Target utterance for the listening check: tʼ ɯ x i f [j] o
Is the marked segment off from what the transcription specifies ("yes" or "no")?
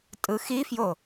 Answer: no